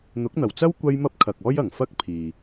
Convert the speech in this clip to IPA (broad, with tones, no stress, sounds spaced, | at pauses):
n̪ ʊ˨˥ k̚ n̪ ɐ˨˩ w t͡s ɐ˥ w kʷ ɐ˥ j m ɐ˥ p̚ kʰ ɐ˨ k̚ ɔː˥ j ɐ˨˩ ŋ f ɐ˥ k̚ pʰ iː˨